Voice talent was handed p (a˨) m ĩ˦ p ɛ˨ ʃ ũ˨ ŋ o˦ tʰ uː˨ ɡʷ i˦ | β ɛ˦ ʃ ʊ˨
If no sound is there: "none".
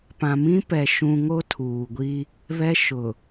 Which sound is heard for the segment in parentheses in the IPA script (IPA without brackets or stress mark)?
ã˨